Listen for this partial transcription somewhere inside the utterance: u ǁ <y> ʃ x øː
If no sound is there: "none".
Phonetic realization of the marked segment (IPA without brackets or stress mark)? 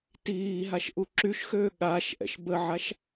y